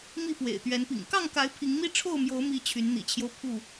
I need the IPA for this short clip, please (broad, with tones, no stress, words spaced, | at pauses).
mi˥˨pwḛ˨˩ɪ̯t̪ɥɛ˨˦npḭ˨˩ŋ kɑ˥˨ŋka˨˦ɪ̯ pʰi˨˦ŋmi˦ ʈ͡ʂʰo˥˨ʊ̯mjo˨˦ʊ̯mi˨˦ t͡ɕʰy˨˦nn̪ḭ˨˩t͡ɕʰjo˦ʊ̯ pʰu˥˨